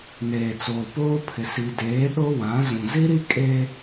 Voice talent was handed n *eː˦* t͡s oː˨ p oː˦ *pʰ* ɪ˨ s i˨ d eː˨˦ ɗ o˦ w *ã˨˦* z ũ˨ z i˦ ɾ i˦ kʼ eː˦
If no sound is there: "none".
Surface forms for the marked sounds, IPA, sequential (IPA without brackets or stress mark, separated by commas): eː˨, pʰ, ã˨˦